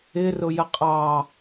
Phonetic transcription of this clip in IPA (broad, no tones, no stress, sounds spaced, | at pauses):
ɪ r ʊ j ə qʼ ɑ